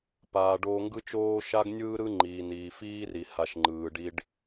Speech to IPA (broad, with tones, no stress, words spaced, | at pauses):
paː˨ɖoː˧ ŋɡɯ˦t͡ʃoː˦ ʃa˦ɡnʲɯː˦ɾɯ˦ŋ͡ǃiː˨ niː˨fiː˦ri˨ ha˧ʃŋ͡ǃɯː˨ɖi˦ɖ